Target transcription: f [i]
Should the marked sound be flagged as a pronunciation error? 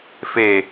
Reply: yes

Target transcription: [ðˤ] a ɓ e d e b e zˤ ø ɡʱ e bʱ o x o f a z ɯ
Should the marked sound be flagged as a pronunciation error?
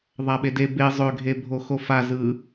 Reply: no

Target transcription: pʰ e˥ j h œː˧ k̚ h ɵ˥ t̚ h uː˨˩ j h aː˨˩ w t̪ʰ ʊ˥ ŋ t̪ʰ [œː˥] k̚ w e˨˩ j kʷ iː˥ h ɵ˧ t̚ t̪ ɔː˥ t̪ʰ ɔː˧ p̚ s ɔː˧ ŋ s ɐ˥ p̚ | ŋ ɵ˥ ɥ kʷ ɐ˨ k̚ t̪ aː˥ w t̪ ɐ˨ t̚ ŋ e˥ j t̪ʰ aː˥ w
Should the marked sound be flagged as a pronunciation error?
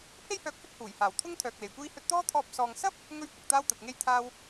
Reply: yes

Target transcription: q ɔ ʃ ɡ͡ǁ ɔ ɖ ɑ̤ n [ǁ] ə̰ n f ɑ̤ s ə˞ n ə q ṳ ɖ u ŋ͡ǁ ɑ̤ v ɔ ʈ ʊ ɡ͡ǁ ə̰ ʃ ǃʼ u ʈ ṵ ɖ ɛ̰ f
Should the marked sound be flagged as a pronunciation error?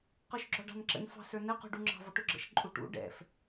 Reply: no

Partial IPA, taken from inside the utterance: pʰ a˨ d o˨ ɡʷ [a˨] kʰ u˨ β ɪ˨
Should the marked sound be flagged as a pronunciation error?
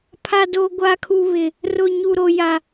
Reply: no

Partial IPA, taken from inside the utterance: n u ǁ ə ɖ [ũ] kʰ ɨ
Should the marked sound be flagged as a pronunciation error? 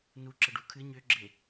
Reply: yes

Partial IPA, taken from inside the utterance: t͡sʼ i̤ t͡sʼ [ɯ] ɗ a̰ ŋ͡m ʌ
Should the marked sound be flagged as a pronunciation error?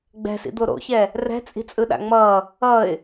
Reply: no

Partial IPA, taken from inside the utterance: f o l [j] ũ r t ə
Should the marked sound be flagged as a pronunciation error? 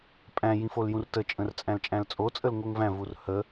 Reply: no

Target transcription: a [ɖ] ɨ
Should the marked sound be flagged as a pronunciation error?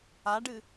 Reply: no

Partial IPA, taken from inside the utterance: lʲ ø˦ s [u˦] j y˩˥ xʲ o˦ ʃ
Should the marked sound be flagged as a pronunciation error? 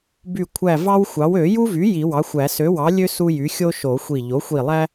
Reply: no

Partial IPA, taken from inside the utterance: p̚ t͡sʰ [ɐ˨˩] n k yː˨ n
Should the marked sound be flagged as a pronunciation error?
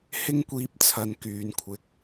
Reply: yes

